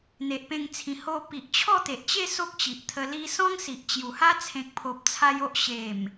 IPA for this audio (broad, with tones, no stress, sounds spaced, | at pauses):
n̪ e˨ ʔ p ẽ˧ ŋ t͡sʰ ĩ˨˩ h o˧ p i˨ ʔ t͡ɕʰ ɔ˥˧ t̪ e˨ ʔ t͡ɕ e˥˧ s o˦ k̚ t͡ɕ i˨ ʔ t̪ʰ ə˧ l i˧ s ɔ̃˦ ŋ s i˨ ʔ t͡ɕ j u˨˩ h a˦ t͡sʰ ẽ˨ k̚ pʰ o˨ p̚ t͡sʰ a˧ j o˦ ʔ ɕ e˨˩ m